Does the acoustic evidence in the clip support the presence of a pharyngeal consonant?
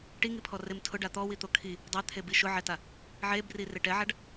yes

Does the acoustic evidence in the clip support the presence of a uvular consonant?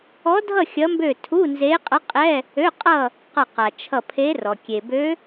yes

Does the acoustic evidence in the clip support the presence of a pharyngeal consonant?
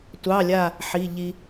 yes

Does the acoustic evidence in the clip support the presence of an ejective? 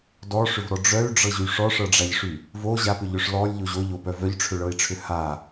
no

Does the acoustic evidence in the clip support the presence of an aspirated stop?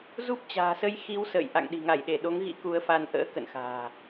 no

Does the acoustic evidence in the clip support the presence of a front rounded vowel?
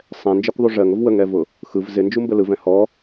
no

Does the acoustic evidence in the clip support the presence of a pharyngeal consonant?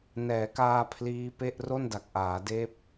no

